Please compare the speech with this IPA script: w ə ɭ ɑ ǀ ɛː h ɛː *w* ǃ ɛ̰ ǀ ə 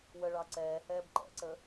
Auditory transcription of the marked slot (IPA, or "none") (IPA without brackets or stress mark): b